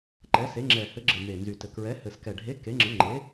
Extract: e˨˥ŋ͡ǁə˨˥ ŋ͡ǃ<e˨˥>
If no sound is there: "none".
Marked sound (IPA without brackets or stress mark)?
e˨˥